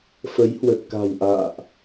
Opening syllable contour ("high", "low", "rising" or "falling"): rising